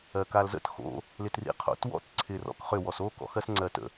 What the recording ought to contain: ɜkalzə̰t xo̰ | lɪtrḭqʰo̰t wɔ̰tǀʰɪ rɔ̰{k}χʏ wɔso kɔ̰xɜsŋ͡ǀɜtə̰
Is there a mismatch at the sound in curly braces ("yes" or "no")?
no